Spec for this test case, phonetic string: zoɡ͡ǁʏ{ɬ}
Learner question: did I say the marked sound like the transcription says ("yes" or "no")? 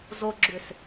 no